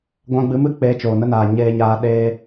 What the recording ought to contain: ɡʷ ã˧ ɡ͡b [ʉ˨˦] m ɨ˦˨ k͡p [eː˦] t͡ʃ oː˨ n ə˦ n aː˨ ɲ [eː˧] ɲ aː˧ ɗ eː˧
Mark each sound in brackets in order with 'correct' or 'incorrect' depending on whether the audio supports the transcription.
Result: incorrect, incorrect, correct

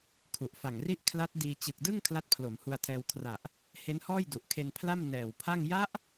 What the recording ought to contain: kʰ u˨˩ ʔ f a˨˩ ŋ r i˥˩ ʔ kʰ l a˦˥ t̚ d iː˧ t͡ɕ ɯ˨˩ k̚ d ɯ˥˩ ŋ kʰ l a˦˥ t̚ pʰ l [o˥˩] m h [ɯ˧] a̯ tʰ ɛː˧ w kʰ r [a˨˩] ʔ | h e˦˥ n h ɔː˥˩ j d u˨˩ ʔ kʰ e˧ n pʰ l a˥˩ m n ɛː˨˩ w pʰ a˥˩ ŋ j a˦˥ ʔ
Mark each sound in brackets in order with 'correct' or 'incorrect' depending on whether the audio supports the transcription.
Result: incorrect, incorrect, correct

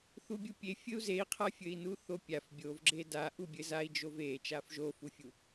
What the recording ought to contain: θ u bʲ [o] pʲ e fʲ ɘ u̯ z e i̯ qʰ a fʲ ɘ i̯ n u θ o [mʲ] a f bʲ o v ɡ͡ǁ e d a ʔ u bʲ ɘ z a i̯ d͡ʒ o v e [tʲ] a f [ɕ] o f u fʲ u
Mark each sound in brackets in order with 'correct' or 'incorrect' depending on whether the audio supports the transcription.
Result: incorrect, incorrect, incorrect, incorrect

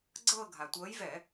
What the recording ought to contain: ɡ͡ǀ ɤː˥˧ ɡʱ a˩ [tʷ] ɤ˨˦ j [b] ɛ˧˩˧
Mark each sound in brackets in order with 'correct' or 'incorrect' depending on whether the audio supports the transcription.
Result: correct, incorrect

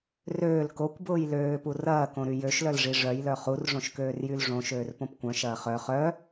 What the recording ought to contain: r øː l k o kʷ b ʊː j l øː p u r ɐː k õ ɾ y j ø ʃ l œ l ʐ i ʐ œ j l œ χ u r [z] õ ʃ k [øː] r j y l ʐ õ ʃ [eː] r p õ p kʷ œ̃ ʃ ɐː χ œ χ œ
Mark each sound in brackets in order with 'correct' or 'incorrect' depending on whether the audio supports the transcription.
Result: incorrect, correct, incorrect

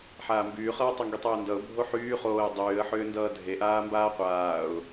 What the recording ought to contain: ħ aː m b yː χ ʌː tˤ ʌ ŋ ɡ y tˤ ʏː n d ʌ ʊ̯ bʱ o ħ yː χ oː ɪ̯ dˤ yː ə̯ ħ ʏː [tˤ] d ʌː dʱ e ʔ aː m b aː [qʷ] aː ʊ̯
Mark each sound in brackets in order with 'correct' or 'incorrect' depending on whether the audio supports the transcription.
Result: incorrect, correct

